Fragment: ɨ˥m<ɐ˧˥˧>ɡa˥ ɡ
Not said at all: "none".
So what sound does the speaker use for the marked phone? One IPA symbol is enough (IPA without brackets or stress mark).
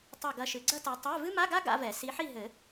a˧˥˧